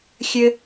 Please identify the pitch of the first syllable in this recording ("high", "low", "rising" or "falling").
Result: high